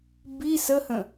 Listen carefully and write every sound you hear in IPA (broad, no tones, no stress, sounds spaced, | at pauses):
b i s ə h ə̃